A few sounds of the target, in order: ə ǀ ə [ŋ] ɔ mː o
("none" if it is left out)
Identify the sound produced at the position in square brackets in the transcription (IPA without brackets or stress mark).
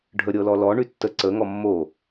ŋ